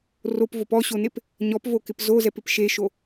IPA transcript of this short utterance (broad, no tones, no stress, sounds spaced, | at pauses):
r o p v o p ɔ ɕ o n e p | ɲ ɔ p v o k ɪ p z o z ɛ p ɪ p ʃ e ʃ o